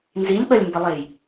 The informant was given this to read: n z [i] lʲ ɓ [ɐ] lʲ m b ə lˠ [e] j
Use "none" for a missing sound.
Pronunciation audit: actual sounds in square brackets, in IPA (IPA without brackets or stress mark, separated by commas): i, ɐ, e